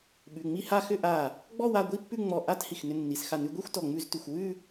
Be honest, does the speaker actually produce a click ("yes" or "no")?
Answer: no